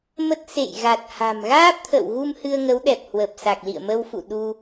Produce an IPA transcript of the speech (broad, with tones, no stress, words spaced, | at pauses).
mə˦˥t̚ sḛ˧˨jɣa˨˩t̚ha̤˨˩m ɣaː˦˥p̚t̪ʰə̰˧˨wɣu˧m hɨ˧ə̯ŋə˨˦wɗɛ˨˩p̚ hwə˨˩p̚sa˨˩k̚lḭ˧˨ə̯ mə˧wfṵ˧˨ ɗu˧